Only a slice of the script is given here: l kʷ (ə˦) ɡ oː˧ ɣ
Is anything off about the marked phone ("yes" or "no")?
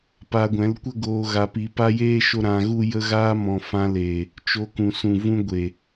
no